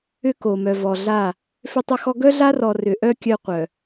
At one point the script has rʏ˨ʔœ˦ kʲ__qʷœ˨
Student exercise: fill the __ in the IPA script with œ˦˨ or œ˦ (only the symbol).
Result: œ˦